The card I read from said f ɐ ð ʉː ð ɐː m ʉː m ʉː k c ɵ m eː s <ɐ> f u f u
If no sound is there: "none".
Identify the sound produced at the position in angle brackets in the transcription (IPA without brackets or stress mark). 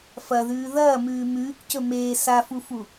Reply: a